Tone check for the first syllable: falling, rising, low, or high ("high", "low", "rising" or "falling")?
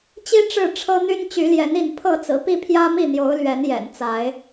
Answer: high